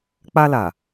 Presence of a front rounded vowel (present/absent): absent